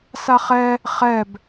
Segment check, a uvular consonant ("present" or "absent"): present